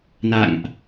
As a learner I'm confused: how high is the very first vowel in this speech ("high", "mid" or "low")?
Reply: low